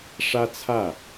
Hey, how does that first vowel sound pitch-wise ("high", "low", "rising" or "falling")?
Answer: high